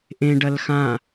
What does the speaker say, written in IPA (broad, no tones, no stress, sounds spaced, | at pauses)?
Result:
ʔ ẽ ɖ ɐ l x ã